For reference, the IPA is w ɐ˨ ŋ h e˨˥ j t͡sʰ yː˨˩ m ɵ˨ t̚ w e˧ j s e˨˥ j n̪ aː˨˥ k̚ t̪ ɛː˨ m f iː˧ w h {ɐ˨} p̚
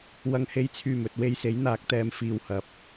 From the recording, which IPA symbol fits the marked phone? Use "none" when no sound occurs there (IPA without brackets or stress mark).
ɐ˧